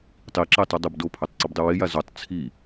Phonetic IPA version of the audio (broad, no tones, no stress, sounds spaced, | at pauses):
tˤ i ǁ e tˤ ʉ dˤ ɨ b d o pʰ ɵ tˤ ǀ ʉ b dˤ ɨ w e j a z o tˤ t͡sʰ i